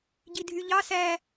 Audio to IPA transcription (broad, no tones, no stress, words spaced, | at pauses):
ɟidʱyʎɑ sæ